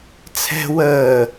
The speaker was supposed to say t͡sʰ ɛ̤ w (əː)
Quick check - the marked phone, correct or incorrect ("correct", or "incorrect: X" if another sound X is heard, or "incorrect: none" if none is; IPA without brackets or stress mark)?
correct